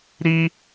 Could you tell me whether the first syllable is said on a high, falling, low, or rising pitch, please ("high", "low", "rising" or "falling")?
high